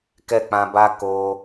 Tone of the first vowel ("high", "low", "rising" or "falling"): high